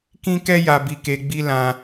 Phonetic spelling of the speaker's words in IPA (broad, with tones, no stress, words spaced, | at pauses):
kĩ˦kɛ˦ ja˧bi˧ke˧ɡ͡bi˦ lã˧